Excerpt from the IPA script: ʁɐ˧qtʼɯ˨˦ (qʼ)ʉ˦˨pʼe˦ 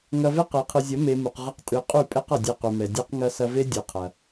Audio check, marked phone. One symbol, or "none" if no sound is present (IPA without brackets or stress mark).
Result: qʼ